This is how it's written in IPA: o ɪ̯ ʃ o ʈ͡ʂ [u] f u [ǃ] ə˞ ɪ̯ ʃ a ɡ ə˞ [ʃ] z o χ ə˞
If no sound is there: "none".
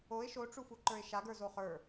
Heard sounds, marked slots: u, ǃ, none

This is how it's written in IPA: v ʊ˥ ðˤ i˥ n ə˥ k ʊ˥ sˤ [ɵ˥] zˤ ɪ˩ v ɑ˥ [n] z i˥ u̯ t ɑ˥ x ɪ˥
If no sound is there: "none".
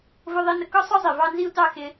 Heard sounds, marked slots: ʊ˥, n

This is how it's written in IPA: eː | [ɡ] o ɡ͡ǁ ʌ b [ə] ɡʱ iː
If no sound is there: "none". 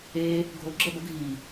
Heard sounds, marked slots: ɡʱ, ə

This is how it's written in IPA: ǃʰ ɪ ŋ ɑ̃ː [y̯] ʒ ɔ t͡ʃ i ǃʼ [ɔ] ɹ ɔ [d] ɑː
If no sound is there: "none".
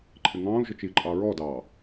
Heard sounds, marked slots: u̯, ɑ, d

